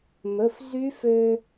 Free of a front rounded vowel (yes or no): no